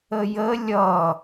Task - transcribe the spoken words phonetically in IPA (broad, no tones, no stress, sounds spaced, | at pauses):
ə j ə lʲ ʌ